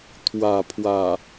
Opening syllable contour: low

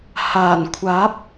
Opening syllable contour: low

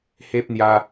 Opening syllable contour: high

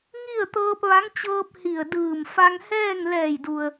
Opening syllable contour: falling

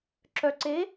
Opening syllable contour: low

